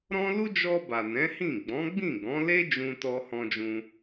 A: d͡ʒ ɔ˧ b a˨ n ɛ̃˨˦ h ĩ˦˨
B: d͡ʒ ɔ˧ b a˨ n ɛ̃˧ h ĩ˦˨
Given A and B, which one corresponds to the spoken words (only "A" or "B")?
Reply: A